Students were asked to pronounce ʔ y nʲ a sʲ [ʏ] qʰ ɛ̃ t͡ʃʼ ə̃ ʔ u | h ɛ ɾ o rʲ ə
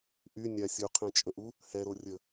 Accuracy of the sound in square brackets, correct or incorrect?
incorrect: u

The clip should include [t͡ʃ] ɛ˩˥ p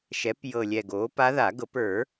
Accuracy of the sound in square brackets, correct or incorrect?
incorrect: ʃ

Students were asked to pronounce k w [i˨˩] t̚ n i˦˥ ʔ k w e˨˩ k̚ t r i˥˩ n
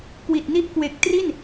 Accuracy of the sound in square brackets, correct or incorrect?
correct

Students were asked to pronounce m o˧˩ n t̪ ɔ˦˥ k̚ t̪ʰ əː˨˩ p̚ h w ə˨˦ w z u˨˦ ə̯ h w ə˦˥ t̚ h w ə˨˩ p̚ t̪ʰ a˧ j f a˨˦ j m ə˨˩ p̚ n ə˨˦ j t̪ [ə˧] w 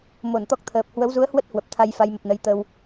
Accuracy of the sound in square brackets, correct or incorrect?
correct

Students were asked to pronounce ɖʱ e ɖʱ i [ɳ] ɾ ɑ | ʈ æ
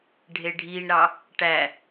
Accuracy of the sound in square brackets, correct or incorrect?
correct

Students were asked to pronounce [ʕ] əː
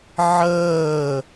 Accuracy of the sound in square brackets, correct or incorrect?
correct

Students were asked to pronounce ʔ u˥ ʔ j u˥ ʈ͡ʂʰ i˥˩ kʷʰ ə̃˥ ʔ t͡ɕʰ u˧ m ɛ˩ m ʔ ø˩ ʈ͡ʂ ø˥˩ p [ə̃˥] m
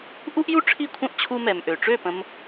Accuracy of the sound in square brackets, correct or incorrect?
incorrect: ə̃˧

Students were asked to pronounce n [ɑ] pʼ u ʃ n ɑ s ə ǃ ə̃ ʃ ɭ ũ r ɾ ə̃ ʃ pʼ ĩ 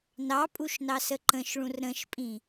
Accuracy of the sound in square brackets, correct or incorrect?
correct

